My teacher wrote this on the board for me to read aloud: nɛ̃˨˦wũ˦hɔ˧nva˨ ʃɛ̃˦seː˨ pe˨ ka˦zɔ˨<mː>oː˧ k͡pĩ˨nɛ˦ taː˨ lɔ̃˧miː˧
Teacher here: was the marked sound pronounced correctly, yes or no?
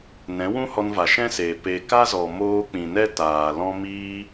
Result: no